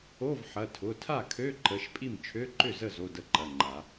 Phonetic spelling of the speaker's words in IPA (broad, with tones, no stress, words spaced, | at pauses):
o˧˥˧vħɐ˩˧˩ tʰʊ˩˧˩tʰa˥˩kʰø˧˥˧ ǃə˩˧˩ʃ pʼi˥˩m t͡ʃʰø˧˥˧ǃʏ˥˩zə˥˩ zo˧˥˧də˥˩ǃɐ˩˧˩ŋ͡ǃa˨˩˦